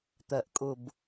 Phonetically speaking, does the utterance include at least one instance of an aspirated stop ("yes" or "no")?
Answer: no